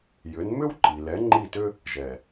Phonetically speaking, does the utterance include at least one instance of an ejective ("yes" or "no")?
no